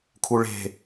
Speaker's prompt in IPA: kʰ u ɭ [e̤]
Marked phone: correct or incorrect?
correct